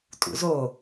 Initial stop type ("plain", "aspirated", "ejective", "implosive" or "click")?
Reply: ejective